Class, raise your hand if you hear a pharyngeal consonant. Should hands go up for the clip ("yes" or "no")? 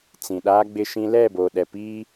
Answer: no